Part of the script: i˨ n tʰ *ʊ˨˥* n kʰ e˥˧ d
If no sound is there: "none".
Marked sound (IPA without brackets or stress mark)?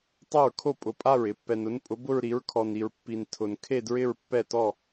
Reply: ʊ˨